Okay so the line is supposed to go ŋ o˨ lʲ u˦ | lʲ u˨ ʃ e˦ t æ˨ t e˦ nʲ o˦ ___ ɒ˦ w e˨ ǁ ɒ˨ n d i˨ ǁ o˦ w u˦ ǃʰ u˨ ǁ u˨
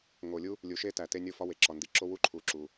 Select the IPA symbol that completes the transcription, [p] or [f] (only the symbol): f